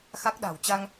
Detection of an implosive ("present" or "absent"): present